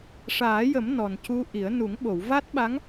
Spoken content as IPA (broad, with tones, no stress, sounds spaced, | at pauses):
ʂ aː˨˩˦ j ə˨˩˦ m n ɔ˨˩ n c u˧˥ ʔ i˨˩˦ ə̯ n u˨˩˦ ŋ ɓ o˨˩˨ w v a˦˥ t̚ ɓ a˧˥ ŋ